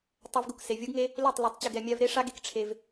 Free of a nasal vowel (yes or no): yes